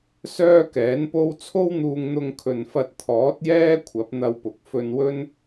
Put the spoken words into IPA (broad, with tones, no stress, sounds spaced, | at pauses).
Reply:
s œː˥ k ɛː˨˥ n p o˥ w t͡sʰ o˥ w n̪ uː˧ ŋ n̪ ʊ˧ ŋ kʰ ɵ˨ n f ɐ˧ t̚ t̪ʰ ɔː˨˥ t̚ j ɛː˥ kʷʰ ɐ˨˥ p̚ n̪ ɐ˧ w p ʊ˨˥ k̚ f ɵ˧ n w ɵ˥ n